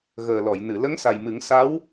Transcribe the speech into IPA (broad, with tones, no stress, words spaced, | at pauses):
ɣəː˨˩lɔ˨˩˨jnɨ˨˩˨ lə˧˥ŋsa˨˩jmɨ˨˩˦ŋsa˧˥w